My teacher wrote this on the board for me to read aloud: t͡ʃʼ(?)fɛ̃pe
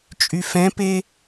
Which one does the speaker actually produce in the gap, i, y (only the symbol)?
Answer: y